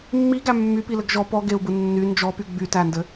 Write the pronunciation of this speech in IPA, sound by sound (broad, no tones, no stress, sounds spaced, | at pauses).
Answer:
mː i ɡ æ mː y p i l ɘ ɡ ʒ ɔ p ɔ ɡ e u̯ b ɯ nː y n d͡ʒ ɔ p y ɡ͡b y t æ n d ɘ